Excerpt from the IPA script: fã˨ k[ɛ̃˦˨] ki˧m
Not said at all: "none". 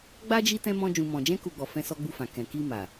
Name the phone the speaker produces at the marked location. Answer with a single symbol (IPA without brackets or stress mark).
ɛ̃˨